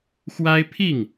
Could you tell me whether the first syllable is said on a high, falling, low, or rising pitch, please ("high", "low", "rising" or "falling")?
high